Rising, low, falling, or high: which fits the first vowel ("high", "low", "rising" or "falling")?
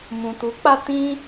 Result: low